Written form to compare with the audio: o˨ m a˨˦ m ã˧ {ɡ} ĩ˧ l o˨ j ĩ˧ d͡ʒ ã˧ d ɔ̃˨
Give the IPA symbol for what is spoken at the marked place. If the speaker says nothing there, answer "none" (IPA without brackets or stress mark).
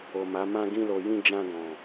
ɡ